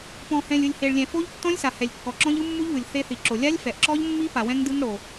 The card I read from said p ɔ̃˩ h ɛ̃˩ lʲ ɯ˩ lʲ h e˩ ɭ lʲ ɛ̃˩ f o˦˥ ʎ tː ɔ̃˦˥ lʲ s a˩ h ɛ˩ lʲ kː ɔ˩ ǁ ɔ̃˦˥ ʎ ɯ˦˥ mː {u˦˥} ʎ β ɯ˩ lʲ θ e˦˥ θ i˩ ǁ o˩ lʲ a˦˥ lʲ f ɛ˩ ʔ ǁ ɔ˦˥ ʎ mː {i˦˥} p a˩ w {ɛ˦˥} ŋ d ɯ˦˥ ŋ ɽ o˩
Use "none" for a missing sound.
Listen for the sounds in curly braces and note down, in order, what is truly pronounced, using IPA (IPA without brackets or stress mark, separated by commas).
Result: u˦˥, i˦˥, ɛ̃˦˥